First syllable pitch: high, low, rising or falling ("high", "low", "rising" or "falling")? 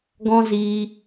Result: high